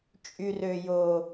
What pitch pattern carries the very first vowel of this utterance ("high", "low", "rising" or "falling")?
low